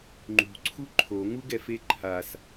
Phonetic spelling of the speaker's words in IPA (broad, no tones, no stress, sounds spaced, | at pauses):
ŋ͡ǃ ṳ ǀʰ u ǃʰ o ŋ u ɡ ɛ f e ǃʰ a s